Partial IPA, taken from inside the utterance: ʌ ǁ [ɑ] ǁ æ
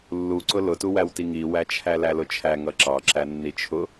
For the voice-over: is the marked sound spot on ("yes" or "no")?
yes